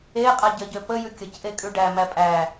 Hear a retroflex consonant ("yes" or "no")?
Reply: yes